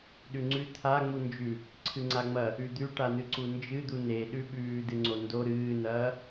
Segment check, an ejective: absent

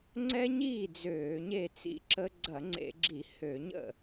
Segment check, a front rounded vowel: present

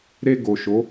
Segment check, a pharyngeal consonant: absent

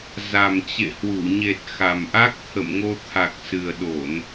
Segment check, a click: absent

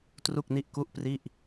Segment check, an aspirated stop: absent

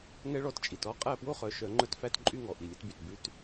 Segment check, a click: present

